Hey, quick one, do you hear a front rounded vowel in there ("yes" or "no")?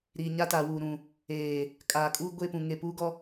no